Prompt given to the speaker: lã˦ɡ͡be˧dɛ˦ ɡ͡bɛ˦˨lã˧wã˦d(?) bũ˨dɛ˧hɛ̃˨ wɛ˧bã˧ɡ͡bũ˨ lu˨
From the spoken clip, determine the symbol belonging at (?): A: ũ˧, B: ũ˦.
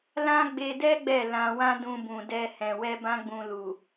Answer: A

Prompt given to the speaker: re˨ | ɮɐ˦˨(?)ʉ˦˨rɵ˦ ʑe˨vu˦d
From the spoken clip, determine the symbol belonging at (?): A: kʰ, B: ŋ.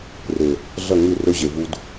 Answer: B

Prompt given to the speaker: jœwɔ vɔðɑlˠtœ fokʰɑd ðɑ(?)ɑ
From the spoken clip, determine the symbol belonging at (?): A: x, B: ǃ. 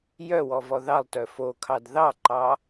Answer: B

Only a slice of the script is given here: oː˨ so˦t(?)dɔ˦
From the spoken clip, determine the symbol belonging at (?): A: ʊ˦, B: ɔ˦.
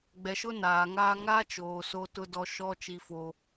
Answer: A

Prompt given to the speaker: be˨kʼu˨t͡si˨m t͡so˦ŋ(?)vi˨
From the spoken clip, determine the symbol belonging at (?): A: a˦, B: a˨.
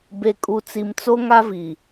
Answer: A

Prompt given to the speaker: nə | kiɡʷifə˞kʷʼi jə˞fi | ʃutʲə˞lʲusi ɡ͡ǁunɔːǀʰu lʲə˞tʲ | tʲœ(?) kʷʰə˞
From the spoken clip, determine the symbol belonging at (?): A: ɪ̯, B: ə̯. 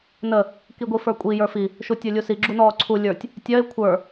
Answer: A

